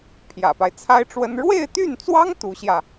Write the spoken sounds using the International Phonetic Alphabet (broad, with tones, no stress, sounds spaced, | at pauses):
pʰ j ä̰˨˩ p a˦ ɪ̯ t͡sʰ a˥ ɪ̯ ʈ͡ʂ w ə˥ n ɻ w e˥˧ ɪ̯ t̪ y˥˩ n t͡s w ɑ˥ ŋ t̪ u˧˥ ɕ j ä˧